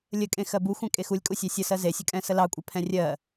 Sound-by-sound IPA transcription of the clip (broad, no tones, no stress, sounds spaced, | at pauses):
lʲ ə kʼ ẽ x ɜ b u xʷ ɛ̃ kʼ e x u lʲ kʼ u sʲ ɑ sʲ ə s ɜ z e sʲ ə kʼ ɛ̃ s ə l ɑ kʷʼ ɛ pʰ ɛ̃ rʲ ɜ